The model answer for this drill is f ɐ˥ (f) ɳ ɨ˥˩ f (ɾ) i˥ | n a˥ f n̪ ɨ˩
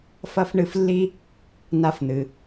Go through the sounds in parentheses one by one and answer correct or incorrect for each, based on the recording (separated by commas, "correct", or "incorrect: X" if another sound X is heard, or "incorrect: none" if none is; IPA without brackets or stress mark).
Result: correct, incorrect: lː